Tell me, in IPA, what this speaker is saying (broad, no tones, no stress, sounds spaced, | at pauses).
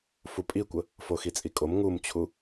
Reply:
f u pʼ i kʷ ə | f o x i t͡sʼ i kʼ o m ŋ u m t͡ɕʰ u